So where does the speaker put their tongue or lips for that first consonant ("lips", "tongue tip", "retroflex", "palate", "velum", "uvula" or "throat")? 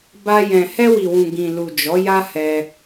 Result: lips